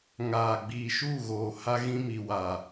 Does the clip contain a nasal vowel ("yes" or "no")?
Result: yes